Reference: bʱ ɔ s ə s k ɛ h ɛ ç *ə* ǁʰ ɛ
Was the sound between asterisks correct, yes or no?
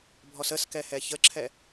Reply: yes